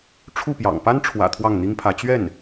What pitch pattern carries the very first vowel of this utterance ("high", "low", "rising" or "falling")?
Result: falling